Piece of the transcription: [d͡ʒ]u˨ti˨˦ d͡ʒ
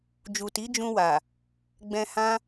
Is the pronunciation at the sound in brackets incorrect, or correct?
correct